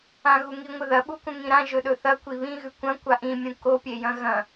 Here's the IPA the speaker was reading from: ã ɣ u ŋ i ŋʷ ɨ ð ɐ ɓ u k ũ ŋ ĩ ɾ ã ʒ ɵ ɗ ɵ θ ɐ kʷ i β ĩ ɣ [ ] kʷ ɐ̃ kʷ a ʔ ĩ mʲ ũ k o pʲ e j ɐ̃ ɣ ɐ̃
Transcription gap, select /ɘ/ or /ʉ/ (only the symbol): ʉ